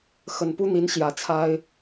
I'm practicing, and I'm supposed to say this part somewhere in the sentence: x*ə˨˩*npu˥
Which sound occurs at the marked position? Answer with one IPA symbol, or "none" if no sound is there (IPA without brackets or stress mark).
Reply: ə˨˩